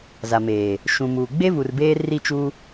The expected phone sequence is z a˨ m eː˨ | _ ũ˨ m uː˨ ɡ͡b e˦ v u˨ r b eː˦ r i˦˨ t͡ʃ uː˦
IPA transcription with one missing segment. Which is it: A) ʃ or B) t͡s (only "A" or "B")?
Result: A